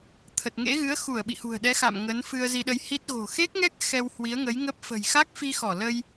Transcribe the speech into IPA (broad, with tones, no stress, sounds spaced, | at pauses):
t̪ʰ ə˨˩ t̚ ŋ ḛ˧˥ ɣ ɨ˨˦ ə̯ x u˧˩ ə̯ ɓ ḭ˧˨ h ṳ˨˩ ə̯ ɗ ɛ˨˦ x a̰˧˨ m ŋ ə˨˦ n f ɨ˧ ə̯ z i˧ ɗ ə˧ j h i˦˥ t̚ ɣ o̤˨˩ x e˦˥ k̚ ŋ ɛ˦˥ k̚ x ɛ˧ w h w i˨˦ ə̯ ŋ ə˨˦ j ŋ ə˦˥ p̚ f ə̤˨˩ j x a˦˥ k̚ f i˧ x ɔ˧˩ l ə˧ j